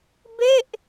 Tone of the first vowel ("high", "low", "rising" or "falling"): falling